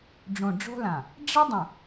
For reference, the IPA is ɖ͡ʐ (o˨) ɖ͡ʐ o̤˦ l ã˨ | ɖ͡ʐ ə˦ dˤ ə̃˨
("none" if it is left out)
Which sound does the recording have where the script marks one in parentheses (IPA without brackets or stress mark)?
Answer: õ˨